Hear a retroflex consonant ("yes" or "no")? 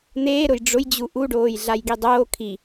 yes